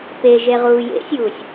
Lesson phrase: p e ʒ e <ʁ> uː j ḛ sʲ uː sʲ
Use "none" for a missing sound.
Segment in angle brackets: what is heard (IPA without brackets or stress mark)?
ʁ